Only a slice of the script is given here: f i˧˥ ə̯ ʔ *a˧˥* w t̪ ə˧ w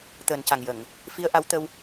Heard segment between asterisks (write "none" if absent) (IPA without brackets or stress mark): a˧˥